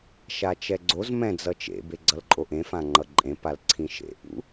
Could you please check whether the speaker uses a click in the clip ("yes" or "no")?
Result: yes